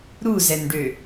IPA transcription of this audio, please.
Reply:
ɾ u z ɛ n ɖ ø

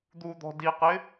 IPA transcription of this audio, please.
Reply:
d̪ u d̪ ɔ̤ d i q ɪ

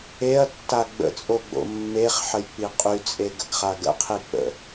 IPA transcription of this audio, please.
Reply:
e ɐ̯ tː a ɡ͡b ə̰ t͡sʼ o ɡ͡b o̰ mː e χ ħ ə j k͡p i qʼ y t͡sʼ e ɡ ə ɡ χ a ɡ ə̰ qʰ i k͡p ə̰

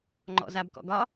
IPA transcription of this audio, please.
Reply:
ŋ͡ǃ ɔ̰ z a b k ɔ̰ ɡ ɒ

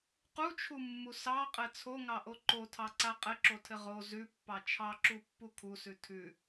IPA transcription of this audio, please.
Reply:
q u t͡ʃʰ u mː u s ɑ qʼ ɘ t͡sʰ o ŋ ɑ ʔ o ǃ o tʰ ɑ ǀ a qʼ ɘ ǁ o tʰ ɘ ʁ o z ʉ pː ɑ t͡ʃʰ ɑ ǁ u pː u kʰ u s ʉ tʰ ʉ

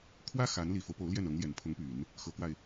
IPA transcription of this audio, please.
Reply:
kʰ w ä˥ x a˧˥ n l i˨˩ f o˦ ʊ̯ p o˧˥ ʊ̯ l j ɛ˥˩ n ɤ˧˥ ŋ l j ɛ˨˩ n pʰ ʊ˧˥ ŋ p y˨˩˦ n | x ɤ˧˥ k w a˧ ɪ̯

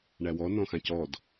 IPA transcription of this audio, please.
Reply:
ɳ æ w ɔ n ɔ̃ x ã c ɔ d

